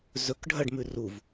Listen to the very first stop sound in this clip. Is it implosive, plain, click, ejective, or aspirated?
plain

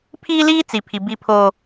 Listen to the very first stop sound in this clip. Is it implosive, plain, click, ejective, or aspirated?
aspirated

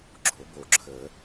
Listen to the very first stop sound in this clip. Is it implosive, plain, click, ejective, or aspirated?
click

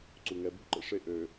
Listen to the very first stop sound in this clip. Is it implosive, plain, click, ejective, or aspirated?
click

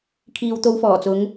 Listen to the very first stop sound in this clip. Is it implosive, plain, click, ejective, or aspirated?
aspirated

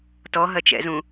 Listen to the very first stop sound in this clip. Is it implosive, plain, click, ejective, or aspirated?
plain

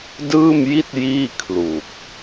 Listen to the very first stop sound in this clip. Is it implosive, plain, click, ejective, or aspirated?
plain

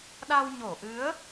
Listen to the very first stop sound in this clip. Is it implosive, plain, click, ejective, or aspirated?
implosive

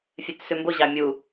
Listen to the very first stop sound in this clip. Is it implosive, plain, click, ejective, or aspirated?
plain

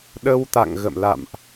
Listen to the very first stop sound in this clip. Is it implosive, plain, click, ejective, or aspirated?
implosive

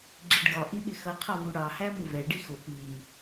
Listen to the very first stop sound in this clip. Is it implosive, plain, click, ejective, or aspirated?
click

